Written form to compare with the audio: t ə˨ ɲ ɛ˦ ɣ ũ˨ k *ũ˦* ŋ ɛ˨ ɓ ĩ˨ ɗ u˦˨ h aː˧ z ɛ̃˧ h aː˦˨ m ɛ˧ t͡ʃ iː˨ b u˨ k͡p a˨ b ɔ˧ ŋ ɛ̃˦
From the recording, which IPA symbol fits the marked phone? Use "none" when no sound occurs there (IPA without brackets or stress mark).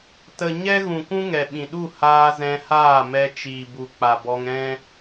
ũ˦